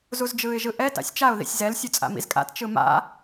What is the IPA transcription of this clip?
z u z d͡ʒ ɯː ɪ̯ ʒ ɯ ʔ ɛ t a̰ sʲ t͡ʃ a ʊ̯ ð ḭ sʲ z ɛ l sʲ u t͡sʼ a̰ m ḭ z kʼ a̰ t t͡ʃ ɯ m a̰

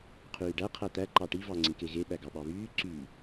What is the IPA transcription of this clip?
qʰ yː ɖ æ qʰ æ t̪ æ ǃ ɑ ʈ i v ɑ ŋ͡ǀ ĩ k e ɣ e ɓ æ ɡ ɑ ɓ ɑ β yː ǀ y

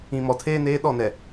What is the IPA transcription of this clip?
ĩ˨ m ɔ˨ tʰ eː˦ n eː˦ ɗ ɔ˦˨ n ɛ˨

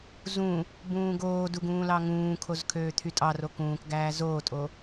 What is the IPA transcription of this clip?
z ũ | b ũː ɡ oː d u ɡ ũː l ɑ ŋ ũː kʰ o z kʰ øː t̪ʰ y tʼ ɑ r o k ũː k ɡ æː z oː tʼ o

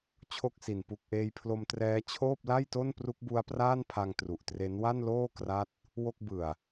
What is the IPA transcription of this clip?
t͡ɕʰ o˥˩ k̚ s i˨˩ n p u˨˩ k̚ ʔ eː˧ j pʰ l o˧ m t r ɛː˦˥ t͡ɕʰ oː˥˩ p̚ l a˥˩ j t o˥˩ n p r u˦˥ k̚ b u˦˥ a̯ p r aː˥˩ n pʰ a˧ ŋ t r u˨˩ ʔ t r e˦˥ n w a˥˩ n l oː˥˩ k r a˥˩ t̚ | w o˥˩ k̚ b ɯ˨˩ a̯

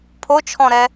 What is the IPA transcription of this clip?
pʰ o t͡ʃʰ ɔ̃ ɾ ɛ

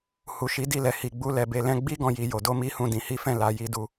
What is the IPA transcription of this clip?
h u˨ ʃ i˨˦ d i˦˨ l ɛ˨ h i˨ ɡ͡b u˧ l ɛ˨ b e˨ l ɛ̃˧ ɡ͡b i˦ ɡ ɔ̃˦ j i˧ j o˧ d o˦ m i˦ h ũ˦˨ d ĩ˨˦ h i˦ f ɛ̃˦˨ l a˧ j i˧ d u˧

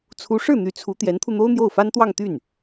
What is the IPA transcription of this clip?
t͡sʰ u˧˥ ʂ ɻ̩˥˩ n̪ y˧˥ t͡sʰ u˧˥ t̪ j ɛ˧˥ n t̪ʰ u˧ n̪ o˥ ʊ̯ n̪ j o˥˩ ʊ̯ f a˥ n t̪ w ɑ˥˧ ŋ t̪ y˥˩ n

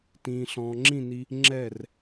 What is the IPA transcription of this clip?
t ĩː˨ ɬ ɔ̃ː˨ ŋ͡ǁ ĩ˦˨ n i˧ | ŋ͡ǁ ɛ˦˨ r

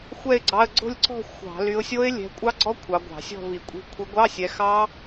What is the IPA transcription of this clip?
xʷ ɛ˥˧ ɪ̯ ɡ͡ǀ ɑ˧˥˧ ə̯ ɡ͡ǀ o̤˥˧ lʲ ǀ ɔ̤˥˧ xʷ ɑ̤˧˩˧ l y˨˦ ʊ̯ sʲ o˦˥ ɪ̯ lʲ ɛ̤˨˦ kʷʼ ɑ˦˥ ɡ͡ǀ ɔ˦˥ kʷʰ ɑ˨˦ ɡʷ ɑ̤˧˩˧ sʲ ɔ̤˥˧ v i˧˩˧ kʷʼ i̤˨˦ kʷʰ i˨˦ ɡʷ ɑ˧˥˧ sʲ ɛ˨˦ x ɑ˦˥

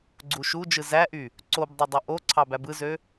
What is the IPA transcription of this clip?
ɡ͡ǀ u ʃ u d͡ʒ ɯ z æ ʔ y | ǀ o b dˤ ø dˤ ø ʔ o ǀʰ ɑ b æ b ɯ z ø

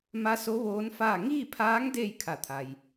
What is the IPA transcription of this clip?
m a˧˥ s o˧˥ ʋ oː˧˥ n f aː˥˨ ŋ iː˥˨ pʰ aː˧˥ ŋ d eː˥˨ j kʰ a˧˩ t̪ʰ a˩ j

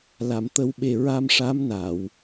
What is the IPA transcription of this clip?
l a˨˩˨ m t̪ ə˨˩˦ w ɓ e˨˩ ɹ a˧ m ʂ a˧˥ m n a˨˩˨ w

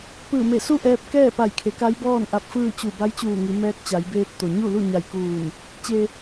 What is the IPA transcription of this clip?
p ɯː˧˩ m e˧˩ s u˥˨ ʔ ɛː˧ p̚ k ɛː˥˨ p a˧˩ j kʰ e˩˧ k a˧˥ j b ɔː˥˨ n ʔ a˧ p̚ f ɯː˥˨ t͡ɕ u˧˩ b a˧˥ j t͡ɕ uː˧˩ ŋ i˩˧ m ɛː˧˥ k̚ t͡ɕ a˩˧ j b eː˧ p̚ t̪ o˩ ɲ u˥˨ l u˥˨ ɲ a˧˩ j k uː˧˩ n | t͡ɕ e˩

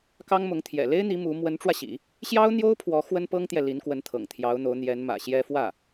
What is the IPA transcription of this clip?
k ɑ˥ ŋ m ʊ˧˥ ŋ t̪ʰ j ɛ̰˨˩ l e˥ ɪ̯ n̪ i˧˥ m u˧˥ m w ə˧˥ n ʈ͡ʂ w ä˧ ɕ ḭ˨˩˦ | ɕ j ɑ˥ ʊ̯ n̪ j o˥ ʊ̯ pʰ w ɔ˧˥ x w ə˥ n p ɤ˥ ŋ t̪ j ɛ˨ l i˧˥ n k w ə˧˥ n t̪ʰ ɤ̰˨˩ ŋ t̪ʰ j ɑ˧˥ ʊ̯ n̪ o˧˥ ʊ̯ n̪ j ɛ˧˥ n m ä̰˨˩ ɕ j ɛ˥ f w ä˥˩

